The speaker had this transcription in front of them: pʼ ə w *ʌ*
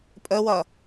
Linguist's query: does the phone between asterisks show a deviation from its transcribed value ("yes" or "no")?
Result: no